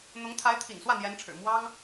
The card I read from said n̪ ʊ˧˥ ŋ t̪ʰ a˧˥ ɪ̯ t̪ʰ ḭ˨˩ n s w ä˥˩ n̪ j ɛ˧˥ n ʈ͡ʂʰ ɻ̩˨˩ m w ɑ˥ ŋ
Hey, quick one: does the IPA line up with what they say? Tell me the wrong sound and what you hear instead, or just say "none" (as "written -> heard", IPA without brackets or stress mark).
none